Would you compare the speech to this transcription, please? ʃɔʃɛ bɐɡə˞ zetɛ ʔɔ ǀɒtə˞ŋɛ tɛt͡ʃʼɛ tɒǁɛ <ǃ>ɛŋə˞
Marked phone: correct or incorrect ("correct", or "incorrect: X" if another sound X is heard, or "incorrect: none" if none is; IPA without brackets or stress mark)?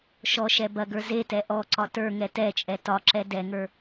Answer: incorrect: d